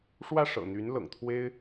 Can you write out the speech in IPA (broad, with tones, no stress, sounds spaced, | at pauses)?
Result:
ʂ w ä˥˩ ʂ ɤ̰˨˩ n̪ y˧˥ n l ɤ̰˨˩ ŋ t̪ʰ w e˥ ɪ̯